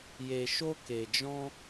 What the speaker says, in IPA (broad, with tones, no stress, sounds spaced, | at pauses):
j e˨ ʃ o˧ k e˨ d͡ʒ ɔ̃˧